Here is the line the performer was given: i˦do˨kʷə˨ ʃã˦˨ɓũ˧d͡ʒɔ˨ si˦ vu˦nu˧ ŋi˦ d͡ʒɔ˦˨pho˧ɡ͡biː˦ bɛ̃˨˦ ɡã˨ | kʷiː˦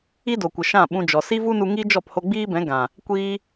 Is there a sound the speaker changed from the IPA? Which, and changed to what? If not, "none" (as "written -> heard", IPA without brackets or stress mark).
none